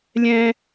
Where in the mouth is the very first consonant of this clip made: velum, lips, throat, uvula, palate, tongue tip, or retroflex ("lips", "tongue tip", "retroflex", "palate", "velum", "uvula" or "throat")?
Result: tongue tip